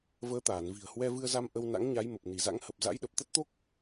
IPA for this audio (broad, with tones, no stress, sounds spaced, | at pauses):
v əː˨˦ t̪ aː˧˩ n v i̤˨˩ ə̯ h w ɛ˧ v ɨ˧ ə̯ z a˧ m ʔ ə˧ w n a̰˧˥ ŋ ɲ a˨˦ j m ə˨˩ p̚ n i˧˩ z a̰˧˥ ŋ h ə˨˩ p̚ z a̰˧˥ j ɗ ə˨˩ p̚ t̪ ə˦˥ t̚ t̪ o˦˥ k̚